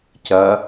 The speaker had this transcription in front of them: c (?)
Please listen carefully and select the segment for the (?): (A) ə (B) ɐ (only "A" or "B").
B